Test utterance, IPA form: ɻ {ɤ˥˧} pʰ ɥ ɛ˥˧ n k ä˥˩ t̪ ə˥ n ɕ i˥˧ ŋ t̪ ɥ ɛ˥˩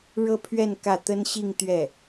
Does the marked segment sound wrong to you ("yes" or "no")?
no